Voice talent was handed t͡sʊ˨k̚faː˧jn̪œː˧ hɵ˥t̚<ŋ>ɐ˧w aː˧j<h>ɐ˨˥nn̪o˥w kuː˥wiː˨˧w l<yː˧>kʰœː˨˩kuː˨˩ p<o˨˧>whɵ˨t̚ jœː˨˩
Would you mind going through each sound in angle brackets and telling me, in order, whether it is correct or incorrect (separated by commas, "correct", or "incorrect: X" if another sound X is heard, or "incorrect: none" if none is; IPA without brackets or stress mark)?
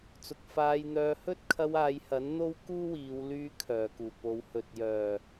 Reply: incorrect: kʰ, correct, correct, correct